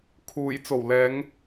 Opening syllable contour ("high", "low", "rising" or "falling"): low